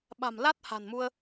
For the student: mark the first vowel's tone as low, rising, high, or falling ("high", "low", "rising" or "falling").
low